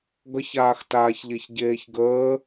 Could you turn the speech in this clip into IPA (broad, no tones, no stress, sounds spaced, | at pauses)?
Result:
ɡ ʌ ç aː x t aː ç ʎ e ç ɟ eː ç ɡ əː